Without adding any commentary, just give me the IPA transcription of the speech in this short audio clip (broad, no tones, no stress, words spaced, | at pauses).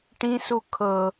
ʈĩsu kʰɤ